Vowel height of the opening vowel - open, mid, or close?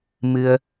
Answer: close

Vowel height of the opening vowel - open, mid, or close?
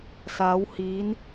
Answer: open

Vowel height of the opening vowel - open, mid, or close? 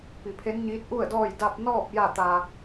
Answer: close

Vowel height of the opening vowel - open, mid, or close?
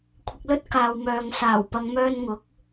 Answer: close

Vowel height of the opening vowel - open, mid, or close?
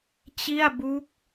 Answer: close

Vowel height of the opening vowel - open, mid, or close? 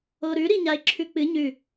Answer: mid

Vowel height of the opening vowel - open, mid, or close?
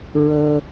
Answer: mid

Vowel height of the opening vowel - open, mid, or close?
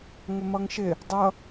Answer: close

